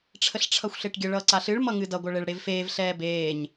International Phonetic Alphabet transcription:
ʈ͡ʂʰəɬʈ͡ʂʰʌxʷɬeʈɡʲə ɭʌːǀaɬɨɭ mʌŋɨdʌ ɡʷʌɭeɭɽevfeːv ɬɛːbeːɲ

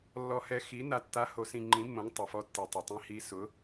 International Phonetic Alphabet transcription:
lːɔ˧hɛ˧ xi˨˥ na˧tːa˨˥ ho˨˥sĩ˧ ŋ͡ǃĩ˨˥mːõ˨˥ŋ tˤʊ˩fɔ˧tːi˩ tˤɪ˩tˤĩ˧hi˧ sʊ˨˥

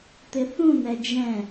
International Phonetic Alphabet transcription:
t̪ɪθũnɛ d͡ʒɛ̃

